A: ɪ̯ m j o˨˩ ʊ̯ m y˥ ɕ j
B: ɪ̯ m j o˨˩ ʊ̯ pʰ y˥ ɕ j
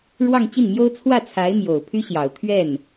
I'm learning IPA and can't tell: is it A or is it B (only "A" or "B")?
B